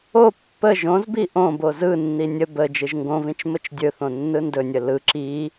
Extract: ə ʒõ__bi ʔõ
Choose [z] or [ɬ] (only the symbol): z